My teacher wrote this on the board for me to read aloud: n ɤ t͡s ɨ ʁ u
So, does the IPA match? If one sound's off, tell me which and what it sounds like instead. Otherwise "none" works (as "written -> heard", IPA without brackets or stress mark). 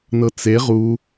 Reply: ɨ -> e